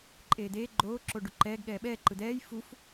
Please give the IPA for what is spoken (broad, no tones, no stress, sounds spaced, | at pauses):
ǃʼ eː d̪ eː ɡ͡ǃ oː ǁ o ɖ u ǃ ɛː ɡ ɠ ɛː ɓ ɛː ǃ ɯ d̪ ɛː j f u f